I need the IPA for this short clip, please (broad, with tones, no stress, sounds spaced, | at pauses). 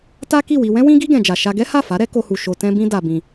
t a˦ k i˦˨ w i˧ w ɛ̃˦ w ĩ˦ ɡ i˦ ɡ ɛ̃˧ d͡ʒ a˧ ʃ a˧ ɡ ɛ˦ h a˦˨ f a˨˦ ɾ ɛ˦ k o˧ h u˨ ʃ o˧ t ɛ̃˦ b ĩ˦ d a˧ b ĩ˧